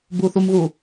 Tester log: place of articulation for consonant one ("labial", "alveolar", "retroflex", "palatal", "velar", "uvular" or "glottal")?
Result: labial